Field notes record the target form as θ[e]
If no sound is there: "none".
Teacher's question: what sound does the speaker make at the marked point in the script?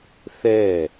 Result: ɛ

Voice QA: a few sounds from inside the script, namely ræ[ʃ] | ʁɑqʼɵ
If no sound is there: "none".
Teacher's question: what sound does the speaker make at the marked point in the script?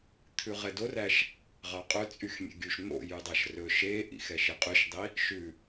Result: ʃ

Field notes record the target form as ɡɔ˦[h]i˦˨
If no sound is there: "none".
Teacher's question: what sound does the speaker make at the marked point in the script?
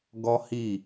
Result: h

